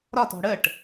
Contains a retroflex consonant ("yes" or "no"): yes